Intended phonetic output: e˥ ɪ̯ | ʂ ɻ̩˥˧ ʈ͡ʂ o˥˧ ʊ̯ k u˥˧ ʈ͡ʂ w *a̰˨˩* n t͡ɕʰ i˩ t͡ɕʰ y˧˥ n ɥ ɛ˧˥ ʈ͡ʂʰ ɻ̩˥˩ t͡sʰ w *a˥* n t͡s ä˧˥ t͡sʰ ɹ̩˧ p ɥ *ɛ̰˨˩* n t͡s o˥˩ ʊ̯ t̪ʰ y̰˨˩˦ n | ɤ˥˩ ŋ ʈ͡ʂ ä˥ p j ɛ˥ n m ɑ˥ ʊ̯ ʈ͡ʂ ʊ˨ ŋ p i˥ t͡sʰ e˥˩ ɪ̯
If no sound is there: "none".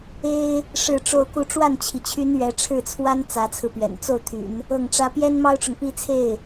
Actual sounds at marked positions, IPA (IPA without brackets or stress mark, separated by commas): a˥˩, a˥, ɛ̰˨˩